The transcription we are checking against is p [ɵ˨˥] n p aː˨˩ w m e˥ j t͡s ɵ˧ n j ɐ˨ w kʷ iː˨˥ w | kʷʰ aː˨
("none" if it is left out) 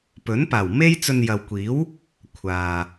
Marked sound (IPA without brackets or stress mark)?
ɵ˨˥